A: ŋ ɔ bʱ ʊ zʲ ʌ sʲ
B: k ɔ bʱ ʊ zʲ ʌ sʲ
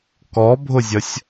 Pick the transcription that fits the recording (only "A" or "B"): B